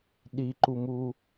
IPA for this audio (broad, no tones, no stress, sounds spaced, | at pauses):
ɗ i ǃ u m u